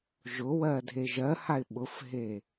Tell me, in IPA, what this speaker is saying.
ʒ ʊ w ɜ dʱ e ʒ ɜ h a ɪ̯ ɓ ʊ f ɦ e

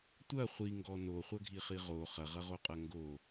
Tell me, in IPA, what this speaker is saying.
tʷ ɐ χʷ i ŋ ɡ ɔ n o χʷ ɐ ɡʱ i χ i ʁ o χ ɐ ʁ ɐ ʁ o qʼ ɐ ŋ ɡ o

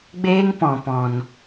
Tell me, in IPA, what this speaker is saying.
ɡ͡b eː˦ ŋ p ɔ̃˨ p ɔ̃˨ n

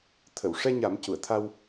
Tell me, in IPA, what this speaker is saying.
t̪ʰ ə˨˩˨ w ʂ ɛ˧ ɲ a˨˩˦ m c u˨˩˨ ə̯ t̪ʰ a˧ w

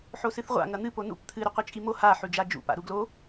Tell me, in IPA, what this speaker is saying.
ħ o s ɨ θ ʁʷ a̰ ŋ ɐ n̪ ɨ p o n ṵ p t̪ʰ ɨ ɾ ɵ qʷ i t͡ʃʼ i m o h a ħ ʉ d͡ʒ a d͡ʒ ṵ p a̰ ɾ u ɡ l o

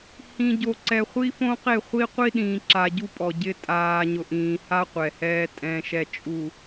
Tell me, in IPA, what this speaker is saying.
h ĩ˨ ɟ o˨ ǀ ɛ˨ χʷ i˦ f õ˦ q e˦˨ χʷ i˦ qʷ i˦ ɗ ĩː˨ ǁ a˨ ɟ u˦ pʼ ɔ˨ ɟ ɪ˦ tʼ aː˨ ɲ ʊ˨ ʔ ĩː˨ h a˦ qʷ ɛ˨ h ɛː˦ tʼ ɛ̃˨ ʃ ɛ˨ t͡ʃʼ u˨

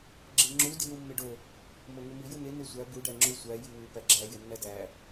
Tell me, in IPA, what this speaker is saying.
ɡ͡ǁ e ŋ͡ǁ u d i w u mː e ɖ o | m o ŋ e m i j u n e n e sʷ æ b u ɖ æ ŋ͡ǁ u sʷ æ j i w u p æ ɡ͡ǁ æ j e nː æ d æ

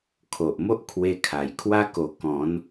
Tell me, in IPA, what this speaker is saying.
kʰ o˨ ʔ m o˦ ʔ kʰ w e˧ kʰ a˨˩ j kʰ w a˦ k o˧ k ɔ̃˨˦ n

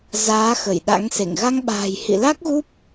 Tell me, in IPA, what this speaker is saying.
z aː˨˦ x ə˧˩ j ɗ a̰˧˥ ŋ s ḛ˧˨ ŋ ɣ a˧ ŋ ɓ a̤ː˨˩ j h ḭ˧˨ l a˦˥ k̚ ɣ u˦˥ p̚

